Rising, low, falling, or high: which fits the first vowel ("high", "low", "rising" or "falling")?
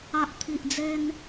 low